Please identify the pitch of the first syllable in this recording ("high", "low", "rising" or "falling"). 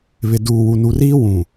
low